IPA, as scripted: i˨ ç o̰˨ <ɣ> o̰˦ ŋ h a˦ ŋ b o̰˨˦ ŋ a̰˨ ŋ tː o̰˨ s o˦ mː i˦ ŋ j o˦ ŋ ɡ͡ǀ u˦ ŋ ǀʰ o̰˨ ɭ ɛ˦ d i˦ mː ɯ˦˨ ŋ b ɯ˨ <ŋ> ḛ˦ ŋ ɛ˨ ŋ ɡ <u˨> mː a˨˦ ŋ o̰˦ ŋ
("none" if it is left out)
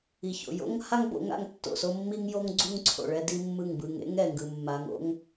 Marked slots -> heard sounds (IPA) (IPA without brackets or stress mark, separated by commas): j, ŋ, ɯ˨